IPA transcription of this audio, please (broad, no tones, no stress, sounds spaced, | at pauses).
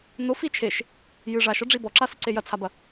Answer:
n o f i t͡ʃʰ e ʃ | j ɨ ʐ a ʃ ɔ ɖ͡ʐ i b ɔ ǁ a s ɨ ǀ e j ɐ t͡sʰ a b ɐ